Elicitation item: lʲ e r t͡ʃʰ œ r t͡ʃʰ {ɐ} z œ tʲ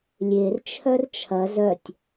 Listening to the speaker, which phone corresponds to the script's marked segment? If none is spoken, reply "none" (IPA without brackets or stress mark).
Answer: ɐ